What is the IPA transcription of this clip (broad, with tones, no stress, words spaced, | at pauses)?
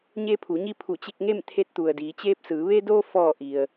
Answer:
ɲeː˧pʰu˩˧ɲi˧ pʰu˧˩t͡ɕe˧k̚ ŋe˥˨mt̪ʰe˧˥t̚t̪u˩ə̯ diː˩˧t͡ɕeː˧p̚sɯː˩˧ ʋe˧doː˧ fɔː˧˩ ʔi˩ə̯